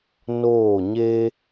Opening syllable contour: falling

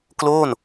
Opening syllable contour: falling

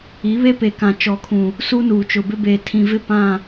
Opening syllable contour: rising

